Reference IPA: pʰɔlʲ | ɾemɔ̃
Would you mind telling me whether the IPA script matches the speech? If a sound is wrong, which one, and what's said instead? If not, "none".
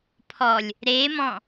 none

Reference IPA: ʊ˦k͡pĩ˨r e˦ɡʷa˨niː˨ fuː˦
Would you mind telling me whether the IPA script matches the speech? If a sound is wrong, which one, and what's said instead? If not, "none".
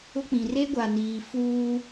none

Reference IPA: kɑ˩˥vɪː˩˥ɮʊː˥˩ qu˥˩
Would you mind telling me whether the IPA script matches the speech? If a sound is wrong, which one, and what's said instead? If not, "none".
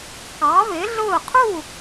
q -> qʰ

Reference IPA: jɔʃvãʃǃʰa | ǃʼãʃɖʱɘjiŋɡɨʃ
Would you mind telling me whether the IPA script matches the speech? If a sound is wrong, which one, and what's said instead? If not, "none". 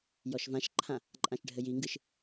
a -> ã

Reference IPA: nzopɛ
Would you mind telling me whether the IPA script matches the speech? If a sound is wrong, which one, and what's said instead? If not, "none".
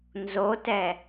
p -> t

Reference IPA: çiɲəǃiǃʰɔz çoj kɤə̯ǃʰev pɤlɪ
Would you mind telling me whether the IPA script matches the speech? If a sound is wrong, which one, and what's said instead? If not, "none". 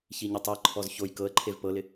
ǃ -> tˤ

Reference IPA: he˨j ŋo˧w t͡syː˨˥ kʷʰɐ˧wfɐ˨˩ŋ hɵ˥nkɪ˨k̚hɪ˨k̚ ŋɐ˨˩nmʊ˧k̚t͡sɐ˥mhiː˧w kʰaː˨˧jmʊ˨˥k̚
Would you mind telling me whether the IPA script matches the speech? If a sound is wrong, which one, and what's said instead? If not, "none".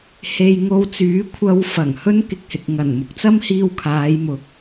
none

